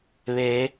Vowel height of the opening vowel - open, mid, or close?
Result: mid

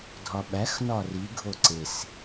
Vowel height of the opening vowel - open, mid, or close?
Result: open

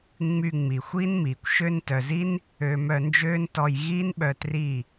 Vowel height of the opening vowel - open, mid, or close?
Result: close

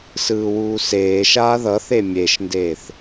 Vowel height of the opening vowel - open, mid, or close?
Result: close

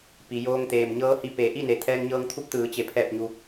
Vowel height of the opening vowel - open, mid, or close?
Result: close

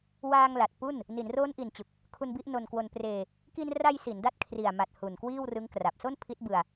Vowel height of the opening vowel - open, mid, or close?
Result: open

